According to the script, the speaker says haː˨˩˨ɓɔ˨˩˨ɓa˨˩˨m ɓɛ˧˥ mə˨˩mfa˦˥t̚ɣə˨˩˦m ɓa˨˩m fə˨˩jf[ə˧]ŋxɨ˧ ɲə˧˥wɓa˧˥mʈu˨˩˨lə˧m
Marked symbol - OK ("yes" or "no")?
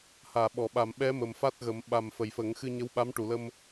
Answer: no